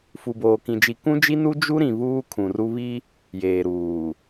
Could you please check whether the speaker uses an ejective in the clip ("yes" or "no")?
no